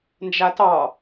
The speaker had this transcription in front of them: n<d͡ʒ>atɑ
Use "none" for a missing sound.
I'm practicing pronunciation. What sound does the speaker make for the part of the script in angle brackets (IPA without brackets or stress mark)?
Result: d͡ʒ